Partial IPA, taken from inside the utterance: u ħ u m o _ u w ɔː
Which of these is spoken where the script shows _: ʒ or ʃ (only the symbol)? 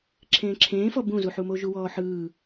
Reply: ʒ